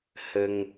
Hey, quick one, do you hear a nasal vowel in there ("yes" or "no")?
no